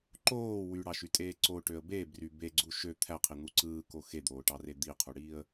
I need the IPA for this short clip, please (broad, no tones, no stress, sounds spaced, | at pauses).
ǃ oː w y ɽ ɑ ʃ y tʼ eː ǀ o ʈ ø ə̯ b e b r y b e ɡ͡ǀ u ʃ ø t̪ʰ æ qʰ i n̪ u ǀ ɯː k o x e d̪ oː ʈ ɑ r e d̪ i qʰ u ɽ iː ə̯